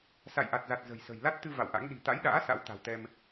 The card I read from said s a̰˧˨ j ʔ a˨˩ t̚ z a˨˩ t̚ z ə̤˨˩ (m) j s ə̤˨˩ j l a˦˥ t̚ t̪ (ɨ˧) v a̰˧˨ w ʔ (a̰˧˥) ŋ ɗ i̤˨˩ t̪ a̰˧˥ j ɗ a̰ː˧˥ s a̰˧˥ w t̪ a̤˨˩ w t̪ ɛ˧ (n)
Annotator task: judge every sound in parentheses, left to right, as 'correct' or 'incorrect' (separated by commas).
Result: incorrect, correct, correct, incorrect